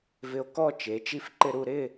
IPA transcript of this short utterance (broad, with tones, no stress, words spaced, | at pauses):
vɪ˧o̯kɔ˥˧ t͡ʃe˩˧ t͡ʃi˧fǃɪ˧ ɾu˧ɾɪ˥˧